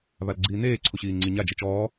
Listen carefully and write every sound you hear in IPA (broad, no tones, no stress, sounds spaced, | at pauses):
β a l ɡ͡ǀ iː n eː ǀʰ u ɕ iː ŋ͡ǀ i ɲ a d͡ʒ e t͡ʃ ɔː